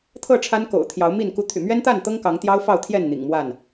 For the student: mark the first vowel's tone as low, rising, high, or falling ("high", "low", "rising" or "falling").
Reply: falling